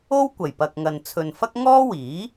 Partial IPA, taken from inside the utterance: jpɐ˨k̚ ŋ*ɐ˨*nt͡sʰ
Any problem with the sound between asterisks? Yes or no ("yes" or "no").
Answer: no